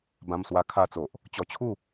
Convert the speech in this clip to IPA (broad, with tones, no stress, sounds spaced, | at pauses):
b ã˧ m s w a˧ kʰ a˧ t͡s o˨ ʔ | t͡ɕ ɔ˧ t͡ɕʰ u˥˧